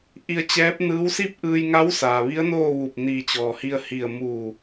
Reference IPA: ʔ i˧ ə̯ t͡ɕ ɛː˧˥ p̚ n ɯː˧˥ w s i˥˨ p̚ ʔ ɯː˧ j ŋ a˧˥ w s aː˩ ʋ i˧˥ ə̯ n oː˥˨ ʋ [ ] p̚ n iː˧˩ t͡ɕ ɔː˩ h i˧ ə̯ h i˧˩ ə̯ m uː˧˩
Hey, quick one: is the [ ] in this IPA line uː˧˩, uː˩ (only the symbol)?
uː˧˩